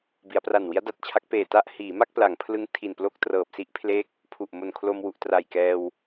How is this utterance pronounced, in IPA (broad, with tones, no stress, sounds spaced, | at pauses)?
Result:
b i˩˦ a̯ p r a˨˩ n w i˦˥ a̯ d a˨˩ t̚ t͡ɕʰ a˦˥ k̚ p eː˨˩ t a˥˩ ʔ h iː˩˦ m a˥˩ k̚ p l a˩˦ ŋ pʰ l ɯ˦˥ ŋ tʰ i˨˩ n p l o˥˩ k̚ t r ɤː˨˩ p̚ s i˦˥ ʔ pʰ l e˦˥ k̚ | pʰ u˨˩ ʔ m o˨˩ n kʰ l o˧ m w u˨˩ ʔ t r a˨˩ j k ɛː˧ w